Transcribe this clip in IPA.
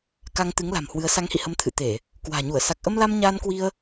k a˧ ŋ t̪ ɨ˨˦ ŋ l a̤˨˩ m h w ɨ˨˦ ə̯ s a˨˦ ŋ h ḭ˧˨ h ə˨˦ m t̪ʰ ɨ̰˧˨ t̪ e˧˩˨ | k w a̤ː˨˩ ɲ u˧˩ ə̯ s a˨˩ k̚ ʔ ə˧ m l a˧ m ɲ aː˧ n k w i˧ ə̯

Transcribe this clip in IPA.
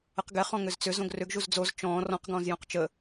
ə q ɡ ɛ χ ɔ̃ ŋ ʏ z t͡s ʏ z õ ɡ r ʏ ɡ ʒ u z d͡z o z t͡ʃ ɔ̃ː r ɔ̃ q ɡ ɔ̃ z j õ q t͡ʃ ə

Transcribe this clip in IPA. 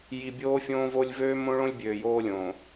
j i˨ bʲ oː˦ fʲ õː˦ v o˦ lʲ v øː˦ m õ˦ ɭ õ˦ lʲ bʲ øː˨ j oː˦ lʲ õː˨

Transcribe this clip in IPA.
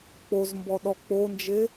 k͡p o z m b ɔ ɗ ɔ k͡p o n d͡ʒ e

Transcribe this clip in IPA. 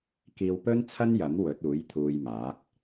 k iː˧ w p ɵ˥ n t͡sʰ ɐ˥ n j ɐ˨˥ m w ɵ˨˥ t̚ uː˨˥ j t̪ʰ uː˧ j m aː˨˥ k̚

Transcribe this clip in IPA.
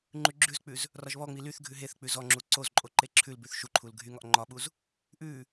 ŋ͡ǃ ʉ ɡ͡ǁ ʉ z k͡p ʉ z | r ɒ ʒ β ɔ ŋ͡m i l y θ ɡʱ ʉ ɦ e θ k͡p ʉ z ɔ ŋ͡ǁ u ǀ o z ǃʼ o ǃ e ǁʰ ʉ l b ʉ θ ʃ u ǃʰ u l ɡʱ y ŋ ɒ ʔ ŋ͡ǃ ɒ ɓ u z | ʔ ʉ

